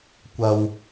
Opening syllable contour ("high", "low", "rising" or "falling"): low